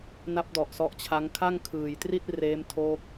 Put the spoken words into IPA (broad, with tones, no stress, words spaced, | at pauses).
na˦˥p̚dɔ˨˩ʔ sɔ˦˥ʔt͡ɕʰa˦˥ŋ kʰa˥˩ŋkʰɯː˨˩jtri˥˩t̚ reː˦˥mtʰoː˦˥k̚